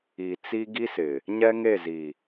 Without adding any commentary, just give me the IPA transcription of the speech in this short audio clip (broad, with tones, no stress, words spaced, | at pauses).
i˨ t͡si˦ ɡi˦sɪ˨ | ɲɛ˦ŋe˦˨zi˨